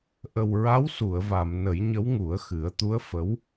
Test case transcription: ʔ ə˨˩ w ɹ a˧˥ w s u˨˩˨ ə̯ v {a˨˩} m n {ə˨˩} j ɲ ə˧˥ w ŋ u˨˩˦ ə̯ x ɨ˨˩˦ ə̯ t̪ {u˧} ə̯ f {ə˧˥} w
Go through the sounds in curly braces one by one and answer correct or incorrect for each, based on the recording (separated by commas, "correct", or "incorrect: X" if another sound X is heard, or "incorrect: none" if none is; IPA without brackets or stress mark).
incorrect: a˨˩˨, incorrect: ə˨˩˦, incorrect: u˧˥, correct